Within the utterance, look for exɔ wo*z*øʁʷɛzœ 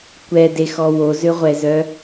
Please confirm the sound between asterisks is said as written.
yes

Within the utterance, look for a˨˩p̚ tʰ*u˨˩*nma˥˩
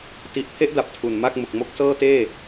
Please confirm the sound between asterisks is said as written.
yes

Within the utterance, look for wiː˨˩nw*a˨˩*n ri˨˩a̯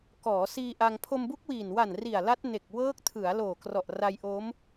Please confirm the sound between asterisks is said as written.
yes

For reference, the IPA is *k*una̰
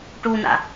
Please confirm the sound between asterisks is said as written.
no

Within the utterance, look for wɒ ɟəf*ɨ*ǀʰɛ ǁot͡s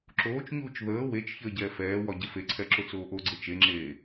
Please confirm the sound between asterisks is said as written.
no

